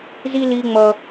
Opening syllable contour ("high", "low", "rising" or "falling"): high